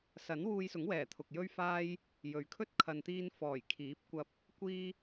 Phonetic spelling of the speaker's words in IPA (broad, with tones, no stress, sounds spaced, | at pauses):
s ɐ˨˥ n w uː˧ j s ʊ˨˥ ŋ w ɛː˨˩ t̪ʰ ʊ˨ k̚ j ɵ˥ ɥ f aː˥ j | j ɵ˨ ɥ kʰ ɵ˥ t̚ kʰ ɐ˨ n t̪ iː˧ n f ɔː˨˩ j kʰ iː˨˥ p̚ kʷ ɐ˧ p̚ | kʷ iː˥